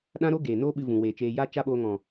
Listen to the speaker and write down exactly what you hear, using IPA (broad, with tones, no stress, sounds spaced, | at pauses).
ɗ ã˦ ɾ o˦ ɡ eː˨ n oː˦ ɓ ɨ˧ v ũ˨ w eː˨ t͡ʃ eː˧ j a˦ t͡ʃ a˦ ɓ oː˧ ŋ ɔ̃˨